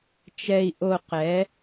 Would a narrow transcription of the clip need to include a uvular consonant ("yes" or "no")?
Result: yes